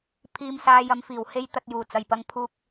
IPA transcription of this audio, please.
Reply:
pʰ iː˧ m s aː˧ j ɐ˧ m f iː˨˩ w h e˥ j t̪ ɐ˧ t̚ j uː˨˩ t͡s ɐ˨˩ j p ɐ˧ ŋ pʰ uː˧ k̚

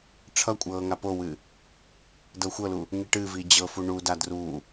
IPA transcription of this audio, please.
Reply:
ʈ͡ʂʰ ʌ kʷʼ ɤː ŋ a p o w ɨ | d ɤ xʷ ɤ l u | ŋ i ʈ ɨ v i d͡ʑ ɤ f u ɳ u d a d r u

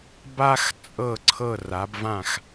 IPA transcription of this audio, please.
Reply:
b a˧ x t͡sʼ ɤ˧˩ ǀʰ ɤ˧˩ r a˩˧ b v ã˧˩ x

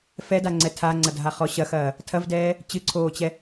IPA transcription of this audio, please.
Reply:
f ɛ d a ŋ͡ǀ ɛ tʰ a ŋ͡ǀ ɐ dʱ a χ ɔ ɕ ɐ x ɐː | tʰ ɐ v d ɛː | t͡ɕ ɨ ǀʰ oː t͡ɕ ɛ

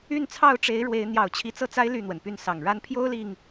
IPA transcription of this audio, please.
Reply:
y˥˨ n t͡sʰ ɑ˥˨ ʊ̯ ʈ͡ʂ e˨˦ ɪ̯ ɻ w e˨˦ ɪ̯ n̪ j ɑ˨˩ ʊ̯ t͡ɕʰ i˨˦ t͡s ɤ˥˨ t͡s a˦ ɪ̯ l y˥˨ n̪ w ə˩ n p y˥˨ n s ɑ˨˩ ŋ ɻ a˦ n pʰ j o˦ ʊ̯ l i˨˩ ŋ

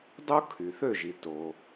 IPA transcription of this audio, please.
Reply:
dˤ o˥ kʰ y˩ θ ø˥˨ ʒ i˩ t o˩

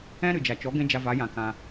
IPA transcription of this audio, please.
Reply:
ɛ̃˦ ɾ ɨ˨ d͡ʒ a˨ t͡ʃ ɔ˨˦ ɡ ɛ̃˦ d͡ʒ a˧ v a˨˦ j ã˨ k ã˧

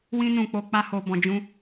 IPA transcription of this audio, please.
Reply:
w ĩ˧ n ũ˨ k͡p o˨ k͡p a˧ h o˨ b ɔ̃˨ d͡ʒ ũ˧

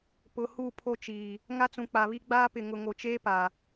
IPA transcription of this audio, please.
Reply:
p ʊ˨ h u˦˨ pʰ o˦ t͡ʃ iː˨ | ŋ a˦ t͡s ũ˨ k͡p a˨ β i˦ ɡ͡b aː˦ p ɪ˨ ŋ ʊ˨ ŋ o˨ t͡ʃ eː˦ p a˨

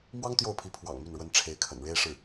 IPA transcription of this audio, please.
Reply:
m w ɑ˥ ŋ t̪ j o˥˩ ʊ̯ pʰ i˧˥ pʰ w ɑ̰˨˩ ŋ m y˥˩ n ɻ w ə˥ n ʈ͡ʂʰ e˧˥ ɪ̯ kʰ ə̰˨˩ n ɻ e˥ ɪ̯ ʂ ɻ̩˥˩

